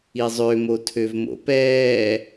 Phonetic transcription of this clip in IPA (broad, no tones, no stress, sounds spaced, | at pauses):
i zˤ ø m o tʰ ø v m o̰ p ɛː